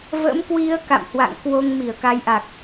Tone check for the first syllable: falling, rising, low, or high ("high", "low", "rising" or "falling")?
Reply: rising